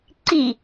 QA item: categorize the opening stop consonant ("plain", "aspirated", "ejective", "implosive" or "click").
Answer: click